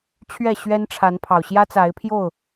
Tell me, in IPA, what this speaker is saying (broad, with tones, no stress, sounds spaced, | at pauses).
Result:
t͡ɕʰ ɥ ɛ˥˨ ɕ ɥ ɛ˦ n ʈ͡ʂʰ a˨˦ n pʰ ɑ˨˩ ʊ̯ ɕ j ä˦ t͡s a˨˦ ɪ̯ pʰ j o˥˨ ʊ̯